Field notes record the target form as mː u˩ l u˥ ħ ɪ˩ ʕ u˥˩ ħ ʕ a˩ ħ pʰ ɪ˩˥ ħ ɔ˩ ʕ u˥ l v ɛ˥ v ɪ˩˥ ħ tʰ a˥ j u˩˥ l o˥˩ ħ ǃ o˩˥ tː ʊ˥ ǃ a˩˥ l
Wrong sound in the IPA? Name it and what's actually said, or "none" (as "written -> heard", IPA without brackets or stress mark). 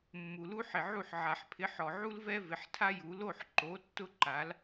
none